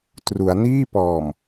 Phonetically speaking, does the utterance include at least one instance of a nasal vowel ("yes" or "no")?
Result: no